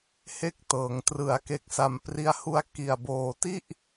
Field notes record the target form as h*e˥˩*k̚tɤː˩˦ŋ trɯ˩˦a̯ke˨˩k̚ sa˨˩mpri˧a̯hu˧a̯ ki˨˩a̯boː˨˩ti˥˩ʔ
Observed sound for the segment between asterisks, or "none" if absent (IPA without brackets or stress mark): e˦˥